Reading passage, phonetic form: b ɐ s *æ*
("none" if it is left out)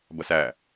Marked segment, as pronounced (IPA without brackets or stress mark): æ